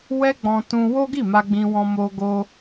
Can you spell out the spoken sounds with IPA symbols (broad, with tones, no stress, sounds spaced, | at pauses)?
w ɛ˦ ɡ͡b ɔ̃˧ t ũ˧ w o˦ ɡ i˦˨ m a˧ ɡ͡b ĩ˧ w ɔ̃˧ m o˧ ɡ o˧